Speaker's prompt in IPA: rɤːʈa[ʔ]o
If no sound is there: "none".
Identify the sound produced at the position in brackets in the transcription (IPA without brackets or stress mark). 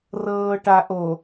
ʔ